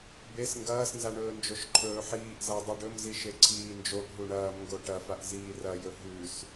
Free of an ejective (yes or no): yes